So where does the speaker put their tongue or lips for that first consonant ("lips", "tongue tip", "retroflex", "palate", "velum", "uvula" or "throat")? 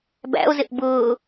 lips